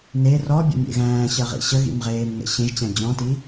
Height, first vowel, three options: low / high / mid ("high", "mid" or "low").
mid